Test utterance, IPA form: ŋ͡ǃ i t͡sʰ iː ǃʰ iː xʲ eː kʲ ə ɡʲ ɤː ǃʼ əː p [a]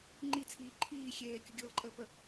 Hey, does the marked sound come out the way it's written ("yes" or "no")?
no